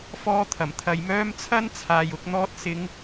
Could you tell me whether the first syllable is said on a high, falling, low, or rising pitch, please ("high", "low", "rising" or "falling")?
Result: high